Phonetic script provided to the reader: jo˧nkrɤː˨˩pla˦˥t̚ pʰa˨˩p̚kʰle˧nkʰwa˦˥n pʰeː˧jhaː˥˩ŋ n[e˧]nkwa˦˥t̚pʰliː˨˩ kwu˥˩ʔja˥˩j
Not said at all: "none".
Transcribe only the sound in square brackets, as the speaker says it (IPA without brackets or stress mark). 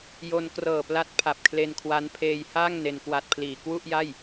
e˧